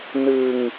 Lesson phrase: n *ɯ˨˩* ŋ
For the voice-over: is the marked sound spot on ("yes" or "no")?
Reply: no